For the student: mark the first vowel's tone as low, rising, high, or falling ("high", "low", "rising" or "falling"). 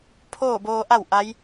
falling